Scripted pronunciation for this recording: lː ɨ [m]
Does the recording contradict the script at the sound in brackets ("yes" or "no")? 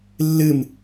no